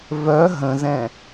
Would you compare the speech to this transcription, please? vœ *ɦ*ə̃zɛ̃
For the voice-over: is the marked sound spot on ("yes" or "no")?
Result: yes